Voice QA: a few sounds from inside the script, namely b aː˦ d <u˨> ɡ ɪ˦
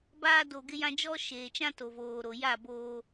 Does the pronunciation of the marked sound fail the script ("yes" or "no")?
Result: yes